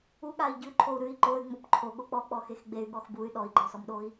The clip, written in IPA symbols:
uɠai̯ ɟʉǃʰou̯ ɾʉi̯ ǃoy̯ŋ͡mop ǃʰoɠo k͡pɔk͡pɔxex ɡ͡bey̯ɠɔx buy̯ ɗɔi̯ɡ͡ǃɔsɔmɗoi̯

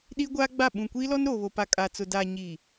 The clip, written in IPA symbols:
ɗi˦ɡʷaː˦ɡ͡ba˦˨ ɓũ˨kʷiː˦lɔ˦n ɾoː˨βo˨ pa˨kʼa˨t͡sʊ˨ da˨ ɲiː˨

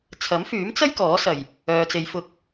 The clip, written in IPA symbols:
t͡sʰɐ˨˥mfyː˨˥mt͡sɐ˥j kɔː˨˥sɐ˨˩j | œː˨t͡se˨j fʊ˨˥k̚

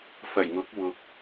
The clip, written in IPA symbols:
fɐ˨˩jŋʊ˨˥k̚wʊ˨k̚

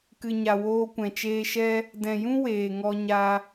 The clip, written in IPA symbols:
kɨ˨ɲa˨ woː˧kʷɛ̃˨t͡ʃeː˧ʃɛ˦ | dɛ̃˨jũ˦ weː˨ŋɔ˧ ɲa˧

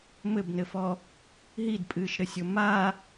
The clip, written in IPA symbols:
mɘbnɘfɔ | ɦidpʼɨːʃɾɘsʲo ma

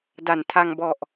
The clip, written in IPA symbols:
da˩˦ntʰa˧ŋ bɔ˨˩ʔ

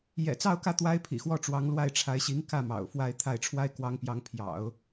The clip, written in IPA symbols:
jɛ̰˨˩t͡sɑ˥˧ʊ̯kä˥˩ t̪wa˥ɪ̯pʰḭ˨˩xwɔ˥˩ʈ͡ʂwɑ˧˥ŋ lwa˥˩ɪ̯ʈ͡ʂʰa˧˥ɪ̯ɕi˧˥ŋ kä˥˩ mɑ̰˨˩ʊ̯fwa˥˧ɪ̯t̪ʰa˥˩ɪ̯ ʈ͡ʂʰwa˥ɪ̯kwɑ˧˥ŋpjɑ˧˥ŋ pʰjɑ̰˨˩˦ʊ̯

